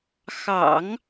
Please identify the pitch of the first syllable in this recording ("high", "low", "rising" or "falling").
low